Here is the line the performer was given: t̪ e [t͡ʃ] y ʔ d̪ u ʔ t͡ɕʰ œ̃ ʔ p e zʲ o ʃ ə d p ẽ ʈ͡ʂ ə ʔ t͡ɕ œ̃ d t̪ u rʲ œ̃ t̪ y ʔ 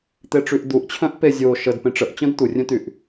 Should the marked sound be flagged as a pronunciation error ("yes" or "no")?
yes